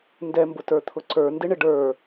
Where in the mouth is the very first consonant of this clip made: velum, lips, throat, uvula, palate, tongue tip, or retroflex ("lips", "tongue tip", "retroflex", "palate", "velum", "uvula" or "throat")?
tongue tip